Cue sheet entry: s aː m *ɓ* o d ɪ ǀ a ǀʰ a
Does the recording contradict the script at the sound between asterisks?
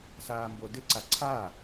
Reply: yes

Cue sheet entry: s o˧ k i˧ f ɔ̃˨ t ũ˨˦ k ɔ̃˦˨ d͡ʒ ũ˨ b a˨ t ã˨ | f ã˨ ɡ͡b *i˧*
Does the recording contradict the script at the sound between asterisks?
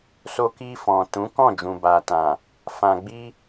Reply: no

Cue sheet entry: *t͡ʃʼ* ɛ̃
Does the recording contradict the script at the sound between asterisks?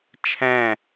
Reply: yes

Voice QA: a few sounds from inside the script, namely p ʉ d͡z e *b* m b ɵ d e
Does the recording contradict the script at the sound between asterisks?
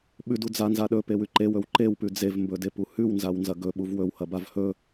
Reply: yes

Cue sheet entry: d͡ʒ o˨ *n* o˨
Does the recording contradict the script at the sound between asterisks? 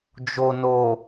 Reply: no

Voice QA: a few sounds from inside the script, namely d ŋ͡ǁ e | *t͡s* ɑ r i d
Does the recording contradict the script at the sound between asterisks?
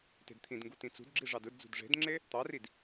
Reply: yes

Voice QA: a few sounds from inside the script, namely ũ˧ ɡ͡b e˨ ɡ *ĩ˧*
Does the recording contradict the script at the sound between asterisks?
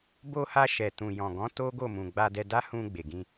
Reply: no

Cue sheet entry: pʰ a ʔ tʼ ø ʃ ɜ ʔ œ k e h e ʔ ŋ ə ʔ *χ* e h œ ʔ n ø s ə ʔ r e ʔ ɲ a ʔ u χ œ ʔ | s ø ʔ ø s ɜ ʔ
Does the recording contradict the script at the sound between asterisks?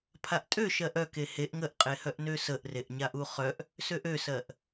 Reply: yes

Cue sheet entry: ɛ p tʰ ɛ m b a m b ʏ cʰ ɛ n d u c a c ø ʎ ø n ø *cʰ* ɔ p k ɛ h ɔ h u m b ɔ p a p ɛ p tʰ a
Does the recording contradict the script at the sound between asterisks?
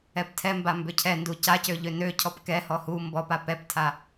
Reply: no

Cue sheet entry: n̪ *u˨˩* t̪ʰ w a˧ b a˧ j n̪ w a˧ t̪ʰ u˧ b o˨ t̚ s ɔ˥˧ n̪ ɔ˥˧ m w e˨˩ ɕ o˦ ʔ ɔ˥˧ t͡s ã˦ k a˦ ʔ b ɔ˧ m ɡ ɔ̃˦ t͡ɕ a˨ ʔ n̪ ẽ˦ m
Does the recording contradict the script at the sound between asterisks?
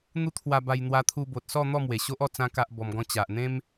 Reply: yes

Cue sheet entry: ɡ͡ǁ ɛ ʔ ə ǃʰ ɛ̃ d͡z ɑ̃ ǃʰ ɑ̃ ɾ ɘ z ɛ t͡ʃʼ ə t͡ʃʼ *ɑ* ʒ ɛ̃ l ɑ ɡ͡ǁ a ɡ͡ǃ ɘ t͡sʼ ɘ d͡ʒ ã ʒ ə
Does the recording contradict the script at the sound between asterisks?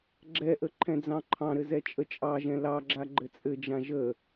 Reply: no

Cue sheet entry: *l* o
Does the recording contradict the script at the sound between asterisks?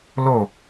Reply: no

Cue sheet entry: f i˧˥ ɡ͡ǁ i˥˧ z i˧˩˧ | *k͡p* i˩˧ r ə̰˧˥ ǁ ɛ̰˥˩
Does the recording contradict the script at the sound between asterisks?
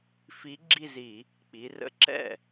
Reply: no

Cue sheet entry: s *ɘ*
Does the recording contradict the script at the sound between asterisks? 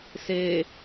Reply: yes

